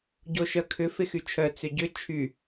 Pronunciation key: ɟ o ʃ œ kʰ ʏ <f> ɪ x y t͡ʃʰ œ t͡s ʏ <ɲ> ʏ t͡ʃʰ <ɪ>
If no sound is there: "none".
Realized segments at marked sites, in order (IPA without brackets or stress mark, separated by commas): f, ɟ, y